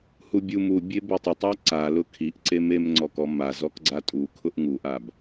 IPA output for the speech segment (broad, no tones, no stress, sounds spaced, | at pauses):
h u bʲ u m u bʲ e b ʊ tˤ ʊ tˤ a ǀ a l ʊ kʰ i ʔ ǀ e m e m ŋ͡ǀ ɔ k ɔ m a z ɔ k ɡ͡ǀ a tʼ u kʰ ʊ ʔ ŋ u ʔ a b